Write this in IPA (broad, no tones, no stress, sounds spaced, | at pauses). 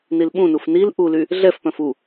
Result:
n i l ɓ ũ n u f n i l ʔ u l y | ɮ ɛ f p œ̃ f u